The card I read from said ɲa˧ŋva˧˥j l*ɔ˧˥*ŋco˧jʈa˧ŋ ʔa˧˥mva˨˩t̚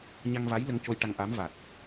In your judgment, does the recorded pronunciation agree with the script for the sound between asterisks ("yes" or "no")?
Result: no